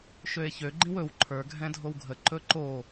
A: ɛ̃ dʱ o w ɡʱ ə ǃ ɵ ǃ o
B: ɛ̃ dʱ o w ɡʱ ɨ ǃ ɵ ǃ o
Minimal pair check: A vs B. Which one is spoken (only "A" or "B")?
A